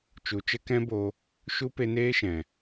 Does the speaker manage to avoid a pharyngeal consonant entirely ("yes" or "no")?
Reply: yes